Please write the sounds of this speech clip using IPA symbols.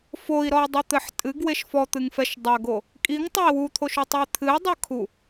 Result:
f o i̯ ɾ ɔ i̯ dˤ ɛ t̪ ɘ ħ tʼ ɨ ɡ w e ʃ f ɔ t̪ ɨ ŋ f ɛ ʃ dˤ ɐ ɡ o | kʼ i ŋ tˤ ɐ i̯ w u t̪ʰ o ʃ u tˤ o i̯ t̪ʰ ɨ i̯ dˤ ɨ kʰ u

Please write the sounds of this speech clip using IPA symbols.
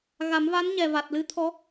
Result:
ɣ a˨˩˦ m v a˧˥ n ɲ ɛ˨˩ v a˨˩ t̚ l ɨ˧˥ t̪ʰ ɔ˧˥

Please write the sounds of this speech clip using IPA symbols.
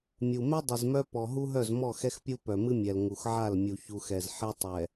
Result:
mʲ u˨ m ɛ˦ dˤ ɨ˨ z m œ˦ p ɔ˨ ɦ u˦ ɦ œ˦˨ z m ɔ˦˨ x ɛ˦ x pʲ u˦ p œ˨ m ɨ˦ mʲ ɛ˨ l ŋ u˨ x ʕ a˦˨ l mʲ u˨ ç u˨ x ɛ˨ z ħ ɛ˦ tˤ ɛ˨

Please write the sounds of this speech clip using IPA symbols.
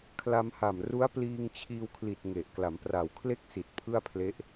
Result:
kʰ l a˧ m h a˨˩ m r u˦˥ a̯ p l iː˧ ŋ t͡ɕʰ iː˧ w kʰ l i˨˩ t̚ ŋ e˨˩ ʔ k l a˩˦ m p r a˨˩ w kʰ l e˥˩ k̚ s i˨˩ t̚ pʰ ɯ˥˩ a̯ pʰ l e˦˥ ʔ

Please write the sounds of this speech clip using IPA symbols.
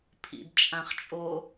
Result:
pʰ ḭ d t͡ʃʼ ã χ t͡ʃʼ o

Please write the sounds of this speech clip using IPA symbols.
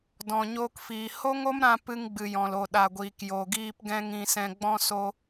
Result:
d ɔ̃˨ ɲ oː˧ k f iː˨ h o˦ ŋ o˦ m ɾ ã˧ p ɨ˧ ŋ ɡ͡b ɨ˨ j ɔ̃˨ l o˨ ɗ a˨ ɡʷ iː˨ k j o˨ ɡ iː˧ p ɡ ɛ̃˦ ŋ ĩ˧ s ɛ̃˧ ɡ͡b ɔ̃˦ s o˦

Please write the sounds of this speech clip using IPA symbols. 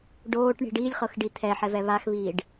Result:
ɖ oː ʈ ɳ i̤ ɖ iː lʲ χ ɤ x ɖ i t̪ʰ ɛ ħ ɛ v ɛ β a x β iː ɖ

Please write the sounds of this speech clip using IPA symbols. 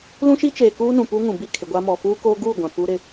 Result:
l ũ˦ ʃ i˦ t͡ʃ eː˨ k uː˦ n ũ˨ p uː˦ ŋ ũ˨ b i˦˨ kʰ ɪ˨ ɡʷ a˦ m ɔ˨ f uː˦ k oː˦ ɡ uː˦˨ ɡʷ ã˨ p u˦ ɾ ɪ˦˨

